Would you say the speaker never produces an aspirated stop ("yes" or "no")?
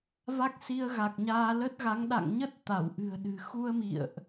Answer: yes